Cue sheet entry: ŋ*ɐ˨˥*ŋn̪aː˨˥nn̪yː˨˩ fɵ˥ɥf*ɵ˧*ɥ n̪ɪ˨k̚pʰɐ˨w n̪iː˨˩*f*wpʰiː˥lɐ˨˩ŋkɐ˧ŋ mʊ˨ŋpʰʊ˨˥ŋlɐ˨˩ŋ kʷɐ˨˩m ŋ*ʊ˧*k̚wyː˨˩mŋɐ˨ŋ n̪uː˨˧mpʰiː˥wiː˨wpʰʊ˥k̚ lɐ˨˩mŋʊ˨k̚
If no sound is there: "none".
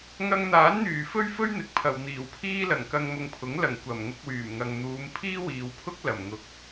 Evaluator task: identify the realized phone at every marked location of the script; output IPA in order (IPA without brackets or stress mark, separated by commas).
ɐ˧, ɵ˥, none, ʊ˧